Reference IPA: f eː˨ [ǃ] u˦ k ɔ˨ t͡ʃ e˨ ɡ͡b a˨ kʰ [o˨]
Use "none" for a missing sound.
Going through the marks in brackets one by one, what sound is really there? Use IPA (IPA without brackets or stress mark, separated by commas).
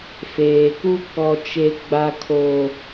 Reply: k, o˨